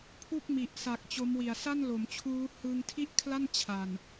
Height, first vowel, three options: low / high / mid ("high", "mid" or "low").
high